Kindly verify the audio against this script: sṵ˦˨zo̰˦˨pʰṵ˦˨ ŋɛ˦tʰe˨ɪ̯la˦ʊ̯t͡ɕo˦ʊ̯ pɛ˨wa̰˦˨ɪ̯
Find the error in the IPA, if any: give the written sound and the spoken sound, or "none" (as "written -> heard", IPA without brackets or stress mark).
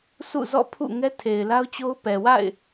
o̰˦˨ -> ɔ̰˦˨